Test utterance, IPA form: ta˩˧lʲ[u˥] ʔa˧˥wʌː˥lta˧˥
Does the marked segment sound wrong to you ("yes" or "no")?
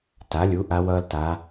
yes